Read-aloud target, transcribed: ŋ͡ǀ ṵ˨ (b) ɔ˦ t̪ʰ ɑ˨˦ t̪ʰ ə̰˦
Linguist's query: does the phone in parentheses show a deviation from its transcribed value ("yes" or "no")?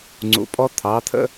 yes